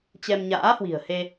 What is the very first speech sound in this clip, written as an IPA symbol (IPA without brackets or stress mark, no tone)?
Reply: t͡ɕ